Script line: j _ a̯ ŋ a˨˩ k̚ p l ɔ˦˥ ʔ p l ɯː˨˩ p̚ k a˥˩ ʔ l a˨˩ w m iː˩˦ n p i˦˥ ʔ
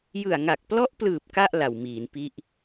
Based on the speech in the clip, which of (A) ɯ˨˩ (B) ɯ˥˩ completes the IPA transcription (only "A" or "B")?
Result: A